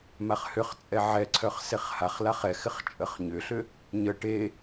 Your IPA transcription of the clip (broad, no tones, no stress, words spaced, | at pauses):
maχhʏχt͡sʼɛ ʕɛǀʰœχ seχhaχlaχ ɛxɪχ t͡ʃʼəχɲʏɬʏ | ɲə ʈe